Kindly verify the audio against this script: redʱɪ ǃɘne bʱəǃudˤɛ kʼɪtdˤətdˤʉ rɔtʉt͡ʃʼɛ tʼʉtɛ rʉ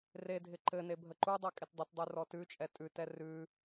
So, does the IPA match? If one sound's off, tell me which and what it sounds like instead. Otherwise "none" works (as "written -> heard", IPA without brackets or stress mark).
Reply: none